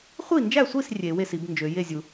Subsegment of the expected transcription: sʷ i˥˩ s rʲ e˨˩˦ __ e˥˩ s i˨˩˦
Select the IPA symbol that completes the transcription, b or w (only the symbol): w